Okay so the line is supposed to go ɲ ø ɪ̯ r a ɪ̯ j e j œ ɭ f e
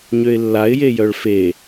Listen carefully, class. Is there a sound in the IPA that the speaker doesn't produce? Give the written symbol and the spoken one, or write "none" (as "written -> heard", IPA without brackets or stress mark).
r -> lː